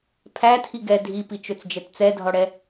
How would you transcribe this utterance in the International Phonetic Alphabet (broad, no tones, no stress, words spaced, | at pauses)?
pʰæ tʰiɡɛ dʱipit͡ʃɵt͡sd͡ʒɛt t͡sɛdʱɔɽɛ